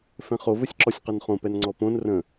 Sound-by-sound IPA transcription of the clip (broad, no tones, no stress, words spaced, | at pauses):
fɛ̃χo vɘsʲǁɔsʲqɘnχõ pɛnŋ͡ǀɔpõn rə̃